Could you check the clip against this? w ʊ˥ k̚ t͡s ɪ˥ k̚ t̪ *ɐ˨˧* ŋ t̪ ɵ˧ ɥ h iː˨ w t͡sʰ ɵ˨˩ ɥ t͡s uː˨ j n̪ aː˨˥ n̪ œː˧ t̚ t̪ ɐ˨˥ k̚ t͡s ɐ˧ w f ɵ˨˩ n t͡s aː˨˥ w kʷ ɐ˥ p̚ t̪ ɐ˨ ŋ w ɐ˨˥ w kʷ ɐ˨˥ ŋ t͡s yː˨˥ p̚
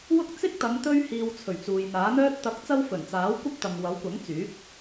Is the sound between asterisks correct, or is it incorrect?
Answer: correct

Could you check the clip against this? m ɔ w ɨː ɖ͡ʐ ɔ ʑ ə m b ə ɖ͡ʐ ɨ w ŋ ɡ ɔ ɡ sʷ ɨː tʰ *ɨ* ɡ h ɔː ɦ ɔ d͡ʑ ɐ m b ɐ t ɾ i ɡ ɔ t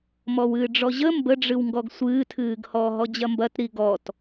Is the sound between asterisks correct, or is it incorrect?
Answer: incorrect: ɨː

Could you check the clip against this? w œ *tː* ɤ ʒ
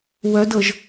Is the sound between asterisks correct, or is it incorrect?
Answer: incorrect: d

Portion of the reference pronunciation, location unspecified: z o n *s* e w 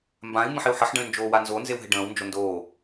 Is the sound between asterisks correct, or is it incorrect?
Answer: incorrect: z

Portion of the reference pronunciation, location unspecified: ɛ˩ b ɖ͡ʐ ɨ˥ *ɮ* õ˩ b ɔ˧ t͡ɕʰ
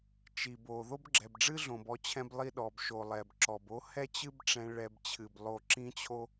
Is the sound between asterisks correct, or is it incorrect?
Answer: correct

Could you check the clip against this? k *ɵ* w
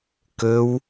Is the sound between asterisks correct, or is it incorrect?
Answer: correct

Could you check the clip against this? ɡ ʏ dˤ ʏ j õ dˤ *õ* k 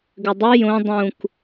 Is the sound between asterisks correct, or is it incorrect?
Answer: incorrect: ũ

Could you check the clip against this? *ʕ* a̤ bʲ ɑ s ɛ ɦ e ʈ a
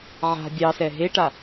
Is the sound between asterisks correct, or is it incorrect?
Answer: correct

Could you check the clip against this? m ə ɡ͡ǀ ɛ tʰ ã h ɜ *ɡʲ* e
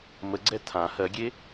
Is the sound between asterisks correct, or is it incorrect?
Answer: correct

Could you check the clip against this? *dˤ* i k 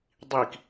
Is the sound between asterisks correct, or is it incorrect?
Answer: correct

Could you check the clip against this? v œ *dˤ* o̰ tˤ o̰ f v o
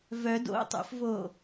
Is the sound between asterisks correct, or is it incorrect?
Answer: incorrect: d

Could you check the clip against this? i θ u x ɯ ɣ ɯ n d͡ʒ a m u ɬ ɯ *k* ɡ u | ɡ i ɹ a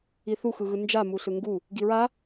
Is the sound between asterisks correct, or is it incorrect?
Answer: incorrect: ŋ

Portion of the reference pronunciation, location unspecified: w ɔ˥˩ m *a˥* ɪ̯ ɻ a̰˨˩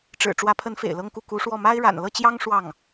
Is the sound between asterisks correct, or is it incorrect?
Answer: correct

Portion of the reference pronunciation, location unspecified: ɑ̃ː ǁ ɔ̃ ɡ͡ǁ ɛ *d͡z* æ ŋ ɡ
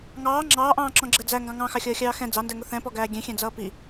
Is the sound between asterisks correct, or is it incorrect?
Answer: correct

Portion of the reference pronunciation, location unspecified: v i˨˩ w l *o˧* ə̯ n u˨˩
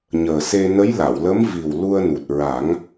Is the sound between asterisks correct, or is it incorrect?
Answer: incorrect: u˧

